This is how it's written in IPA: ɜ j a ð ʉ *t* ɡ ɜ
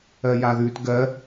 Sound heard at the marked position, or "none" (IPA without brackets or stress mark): t